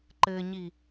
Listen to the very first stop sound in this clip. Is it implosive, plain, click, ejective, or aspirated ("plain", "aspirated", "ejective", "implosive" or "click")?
click